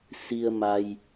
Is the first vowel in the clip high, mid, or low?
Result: high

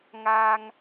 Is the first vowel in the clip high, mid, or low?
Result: low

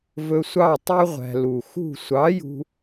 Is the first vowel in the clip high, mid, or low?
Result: mid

